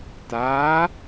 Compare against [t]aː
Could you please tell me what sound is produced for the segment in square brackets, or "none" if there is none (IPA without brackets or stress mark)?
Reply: t